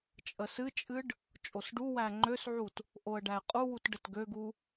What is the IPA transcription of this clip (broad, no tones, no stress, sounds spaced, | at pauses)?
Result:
t͡ʃʼ ə s ɨ t͡ʃʼ ɨ ɖ | t͡ʃʼ o s ɖ u w æ ŋ͡ǃ ø s ʕ u t | ʔ o ə̯ ɖ æ ɪ̯ qʼ u w u t ɖ ə t ɡ ø ɡ u